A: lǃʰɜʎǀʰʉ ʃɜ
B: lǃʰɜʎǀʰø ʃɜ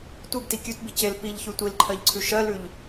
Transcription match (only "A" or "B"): A